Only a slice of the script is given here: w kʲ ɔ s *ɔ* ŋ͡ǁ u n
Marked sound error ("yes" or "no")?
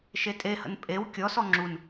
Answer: no